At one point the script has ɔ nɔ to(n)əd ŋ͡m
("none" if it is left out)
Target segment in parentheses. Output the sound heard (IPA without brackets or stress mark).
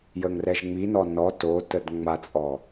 t